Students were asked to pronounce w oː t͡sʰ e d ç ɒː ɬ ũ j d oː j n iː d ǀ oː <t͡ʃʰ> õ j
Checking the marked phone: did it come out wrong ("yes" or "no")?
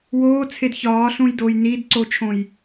no